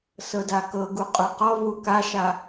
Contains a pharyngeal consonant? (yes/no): no